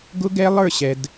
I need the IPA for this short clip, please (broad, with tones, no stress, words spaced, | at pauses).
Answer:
ɡʊ˦ɡɛ˦lˠə˞˦˨ɕɛ˨d